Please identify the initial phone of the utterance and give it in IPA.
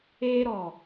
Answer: eː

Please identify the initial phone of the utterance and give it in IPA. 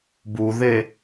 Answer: b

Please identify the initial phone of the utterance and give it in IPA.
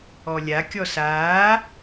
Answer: ɔ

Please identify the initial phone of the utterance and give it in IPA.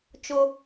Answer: t͡ʃ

